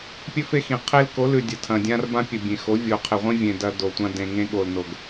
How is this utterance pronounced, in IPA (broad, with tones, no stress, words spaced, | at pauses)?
pʲɵ˦fe˦xĩ˨ qʰe˦lko˨˦lʉ˨ dʲɐ˨tʰɐ̃˨dʲã˦rbã˦ pʲɵ˨ bʲẽ˨xo˨˦ vʲo˨qʰe˨ʁʷĩ˦vʲẽ˨ dɐ˦do˨tʷã˦ dẽ˨ŋẽ˦ ɠo˨lno˨ɡ